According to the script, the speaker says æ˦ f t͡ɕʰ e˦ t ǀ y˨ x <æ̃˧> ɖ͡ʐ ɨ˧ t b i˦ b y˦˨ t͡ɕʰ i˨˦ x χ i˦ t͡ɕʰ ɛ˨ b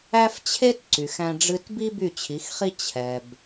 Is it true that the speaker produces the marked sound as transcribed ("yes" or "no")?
yes